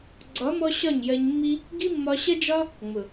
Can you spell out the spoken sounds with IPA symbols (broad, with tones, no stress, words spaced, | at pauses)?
ɡ͡ǀɒ˨˦mɔ˧ ɕɒ˦˨ɲjɜ˧ɲ mːi˧ | ɡi˦mːɒ˧ɕɐ˦d͡ʒɒ˦ | ŋ͡mʊ˨